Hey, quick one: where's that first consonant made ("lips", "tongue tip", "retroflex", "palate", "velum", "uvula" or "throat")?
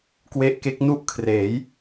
velum